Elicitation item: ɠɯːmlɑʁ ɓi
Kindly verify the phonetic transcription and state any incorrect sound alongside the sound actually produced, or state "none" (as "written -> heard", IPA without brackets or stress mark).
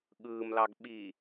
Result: ʁ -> ɡ